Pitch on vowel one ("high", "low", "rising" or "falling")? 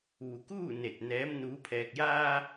low